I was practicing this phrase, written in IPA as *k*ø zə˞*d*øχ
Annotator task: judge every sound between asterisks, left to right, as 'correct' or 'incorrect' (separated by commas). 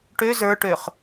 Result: incorrect, incorrect